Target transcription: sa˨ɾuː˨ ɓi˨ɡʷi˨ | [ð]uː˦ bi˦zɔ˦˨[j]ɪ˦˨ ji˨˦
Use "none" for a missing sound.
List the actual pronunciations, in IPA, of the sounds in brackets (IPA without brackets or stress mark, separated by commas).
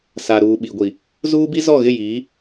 z, ɣ